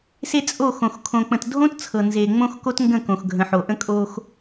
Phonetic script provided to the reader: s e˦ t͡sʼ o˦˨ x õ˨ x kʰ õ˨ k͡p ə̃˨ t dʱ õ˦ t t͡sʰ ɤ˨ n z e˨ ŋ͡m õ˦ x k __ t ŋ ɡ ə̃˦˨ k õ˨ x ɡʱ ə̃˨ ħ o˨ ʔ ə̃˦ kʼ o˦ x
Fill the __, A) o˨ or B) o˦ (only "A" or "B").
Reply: B